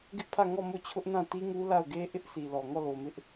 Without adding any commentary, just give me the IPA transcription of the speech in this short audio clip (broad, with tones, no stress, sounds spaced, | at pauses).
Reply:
ɡ ɪ˦ ʔ pʰ ä˦˨ ŋ ɔ˦˨ m o˦˨ t͡ɕʰ ʊ˦ ʔ n ã˦˨ t i˦ ŋ u˦ l a˦˨ ʊ̯ ɡ e˦ ʔ ɪ˦ ʔ s i˨ l ɔ˨ ŋ ɔ˦˨ l o˨ m ɪ˦ ʔ